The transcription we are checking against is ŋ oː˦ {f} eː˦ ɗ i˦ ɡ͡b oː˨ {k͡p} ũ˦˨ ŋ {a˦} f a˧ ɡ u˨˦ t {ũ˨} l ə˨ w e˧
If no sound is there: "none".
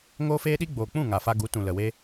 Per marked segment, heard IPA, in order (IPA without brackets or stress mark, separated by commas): f, k͡p, a˨, ũ˨